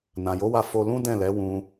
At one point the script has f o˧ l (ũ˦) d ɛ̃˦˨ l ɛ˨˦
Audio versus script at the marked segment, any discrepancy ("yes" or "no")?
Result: no